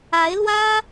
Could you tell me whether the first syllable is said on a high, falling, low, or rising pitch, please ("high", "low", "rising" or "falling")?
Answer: rising